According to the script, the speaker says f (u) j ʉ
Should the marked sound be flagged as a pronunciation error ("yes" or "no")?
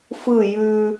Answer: yes